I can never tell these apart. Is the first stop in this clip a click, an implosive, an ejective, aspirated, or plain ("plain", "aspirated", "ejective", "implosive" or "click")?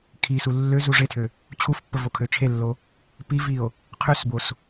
aspirated